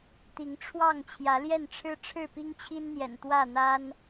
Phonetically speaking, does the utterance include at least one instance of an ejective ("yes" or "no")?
no